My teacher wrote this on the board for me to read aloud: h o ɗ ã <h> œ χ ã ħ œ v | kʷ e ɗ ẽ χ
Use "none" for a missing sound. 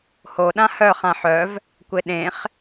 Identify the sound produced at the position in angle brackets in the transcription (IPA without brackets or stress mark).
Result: h